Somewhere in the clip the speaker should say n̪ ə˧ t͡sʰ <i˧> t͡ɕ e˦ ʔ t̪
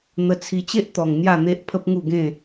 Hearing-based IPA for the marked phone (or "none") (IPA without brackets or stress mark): i˧